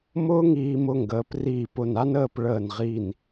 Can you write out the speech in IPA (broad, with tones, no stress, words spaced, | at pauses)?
mʊː˥ŋiː˧mʊ˧ŋɡəː˩˧p riː˧˩p ʊ˧˩na˥nəː˥˧p ɭəː˧˩nʁi˧˩n